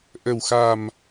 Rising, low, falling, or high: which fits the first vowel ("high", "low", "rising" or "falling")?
low